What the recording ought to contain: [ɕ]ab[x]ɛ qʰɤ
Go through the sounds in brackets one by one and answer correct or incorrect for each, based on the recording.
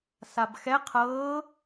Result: incorrect, correct

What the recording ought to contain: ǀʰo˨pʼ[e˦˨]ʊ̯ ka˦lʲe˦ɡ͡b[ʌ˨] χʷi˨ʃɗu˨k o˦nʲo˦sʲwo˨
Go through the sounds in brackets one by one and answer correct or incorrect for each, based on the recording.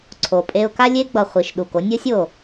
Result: incorrect, correct

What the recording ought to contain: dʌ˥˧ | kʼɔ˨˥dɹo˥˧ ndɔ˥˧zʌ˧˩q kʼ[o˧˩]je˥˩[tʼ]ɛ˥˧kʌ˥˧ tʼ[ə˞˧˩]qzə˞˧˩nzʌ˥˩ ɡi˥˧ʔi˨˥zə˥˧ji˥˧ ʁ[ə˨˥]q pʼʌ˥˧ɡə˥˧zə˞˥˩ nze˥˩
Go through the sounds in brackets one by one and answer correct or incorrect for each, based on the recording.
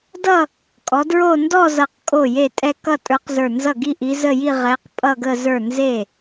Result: incorrect, correct, incorrect, incorrect

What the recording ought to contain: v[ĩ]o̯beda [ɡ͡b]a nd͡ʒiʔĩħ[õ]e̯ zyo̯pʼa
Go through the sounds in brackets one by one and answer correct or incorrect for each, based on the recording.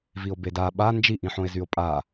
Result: incorrect, incorrect, correct

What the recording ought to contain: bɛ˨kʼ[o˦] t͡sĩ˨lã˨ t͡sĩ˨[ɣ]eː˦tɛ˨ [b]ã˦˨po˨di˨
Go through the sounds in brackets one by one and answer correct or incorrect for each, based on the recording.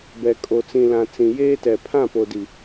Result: incorrect, incorrect, incorrect

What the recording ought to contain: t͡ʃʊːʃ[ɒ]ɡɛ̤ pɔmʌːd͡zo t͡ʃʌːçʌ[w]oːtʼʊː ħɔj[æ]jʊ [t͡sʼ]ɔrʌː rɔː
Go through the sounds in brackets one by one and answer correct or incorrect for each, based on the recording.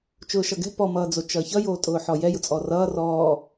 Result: incorrect, incorrect, incorrect, correct

